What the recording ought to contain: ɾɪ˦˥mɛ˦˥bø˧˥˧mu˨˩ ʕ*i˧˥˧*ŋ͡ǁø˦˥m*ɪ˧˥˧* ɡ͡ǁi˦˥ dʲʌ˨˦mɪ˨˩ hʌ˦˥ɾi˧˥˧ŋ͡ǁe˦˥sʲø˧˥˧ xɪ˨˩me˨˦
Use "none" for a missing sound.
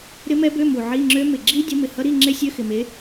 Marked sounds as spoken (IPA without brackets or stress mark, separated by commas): i˧˥˧, ɪ˨˩